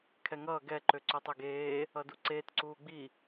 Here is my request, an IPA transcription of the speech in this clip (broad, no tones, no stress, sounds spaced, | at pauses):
kʰ ɛ ŋ ʌː ɡ ɛ ǃ ø ǀ ø tˤ ø ɡ eː | ʌ d u ǀ eː t ǀ uː ɡ͡b i